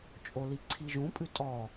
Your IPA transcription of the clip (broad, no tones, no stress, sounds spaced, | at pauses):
t͡ʃʼ o l i ǀʰ i ʒ ũ pʼ ʉ tʼ ɔ